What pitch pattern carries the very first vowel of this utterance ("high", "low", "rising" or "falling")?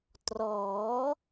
rising